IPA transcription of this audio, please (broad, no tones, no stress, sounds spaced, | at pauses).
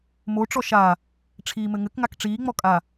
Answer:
m o ʈ͡ʂ ɔ ʃ a | ʈ͡ʂʰ iː m ɘ ŋ ɘ k ŋ a k ʈ͡ʂ iː ŋ͡m ɔ kʼ a